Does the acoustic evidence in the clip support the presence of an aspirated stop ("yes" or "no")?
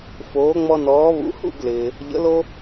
no